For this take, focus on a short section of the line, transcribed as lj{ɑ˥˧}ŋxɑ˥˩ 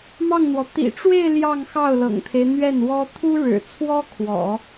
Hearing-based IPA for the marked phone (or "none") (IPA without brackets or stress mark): ɑ˥˧